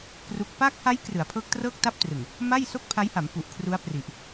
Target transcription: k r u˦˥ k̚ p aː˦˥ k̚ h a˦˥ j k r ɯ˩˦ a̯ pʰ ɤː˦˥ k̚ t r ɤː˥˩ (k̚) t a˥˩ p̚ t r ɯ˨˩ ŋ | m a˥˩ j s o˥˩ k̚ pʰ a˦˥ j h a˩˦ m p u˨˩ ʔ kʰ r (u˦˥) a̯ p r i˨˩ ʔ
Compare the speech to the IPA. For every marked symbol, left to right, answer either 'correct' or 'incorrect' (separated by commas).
correct, correct